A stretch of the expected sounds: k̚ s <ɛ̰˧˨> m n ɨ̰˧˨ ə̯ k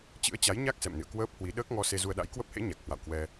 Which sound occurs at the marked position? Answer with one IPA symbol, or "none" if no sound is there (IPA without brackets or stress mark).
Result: ɛ̰˧˨